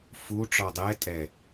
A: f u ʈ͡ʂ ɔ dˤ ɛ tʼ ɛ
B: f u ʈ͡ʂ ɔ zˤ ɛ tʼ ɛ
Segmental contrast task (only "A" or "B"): A